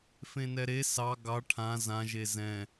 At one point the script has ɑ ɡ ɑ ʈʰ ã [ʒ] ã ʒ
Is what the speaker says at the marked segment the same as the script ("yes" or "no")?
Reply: no